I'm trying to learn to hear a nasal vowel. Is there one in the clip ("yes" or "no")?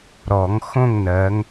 yes